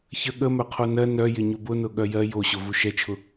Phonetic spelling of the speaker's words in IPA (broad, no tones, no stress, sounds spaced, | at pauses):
ç ə ɠ ə m œ qʰ o n ɜ n œ j ɪ ɲ ʊ b ʊ n ʊ ɠ œ j ɜ j o ɕ ʊ v u ʃ ɛ t͡ʃʰ ʊ